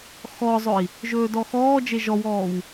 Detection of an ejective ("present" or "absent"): absent